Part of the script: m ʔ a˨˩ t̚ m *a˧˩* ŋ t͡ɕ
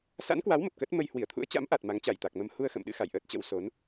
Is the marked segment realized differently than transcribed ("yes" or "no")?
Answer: yes